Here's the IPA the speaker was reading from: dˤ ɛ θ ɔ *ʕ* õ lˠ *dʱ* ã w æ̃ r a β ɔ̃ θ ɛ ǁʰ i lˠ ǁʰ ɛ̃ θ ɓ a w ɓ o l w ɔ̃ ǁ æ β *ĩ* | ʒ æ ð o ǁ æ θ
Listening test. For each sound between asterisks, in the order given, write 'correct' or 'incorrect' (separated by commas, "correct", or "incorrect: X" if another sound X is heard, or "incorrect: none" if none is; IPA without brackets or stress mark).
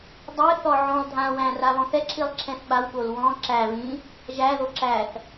correct, correct, correct